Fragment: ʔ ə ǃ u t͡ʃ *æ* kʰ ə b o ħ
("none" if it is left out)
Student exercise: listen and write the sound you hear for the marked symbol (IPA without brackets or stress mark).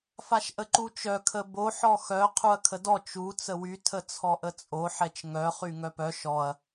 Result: œ